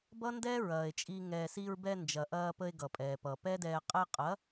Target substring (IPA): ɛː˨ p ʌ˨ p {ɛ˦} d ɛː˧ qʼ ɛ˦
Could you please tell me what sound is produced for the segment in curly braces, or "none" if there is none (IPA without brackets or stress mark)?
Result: ɛː˦